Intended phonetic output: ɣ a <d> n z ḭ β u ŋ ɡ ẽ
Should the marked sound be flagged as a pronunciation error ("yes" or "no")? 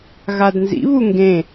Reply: no